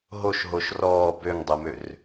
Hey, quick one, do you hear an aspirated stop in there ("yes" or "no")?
no